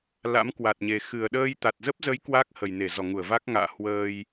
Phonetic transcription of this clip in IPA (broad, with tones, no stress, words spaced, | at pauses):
la̰˧˥mkwa˨˩t̚ɲe˨˩ xɨ˨˩ə̯ɗəː˧j t̪a˨˩t̚zə˦˥p̚zə˨˦j kwaː˦˥k̚hə˨˩jne˧˩ zɔ˧˩ŋu˧˩ə̯va˦˥k̚ŋa̰ː˧˨ hwəː˧j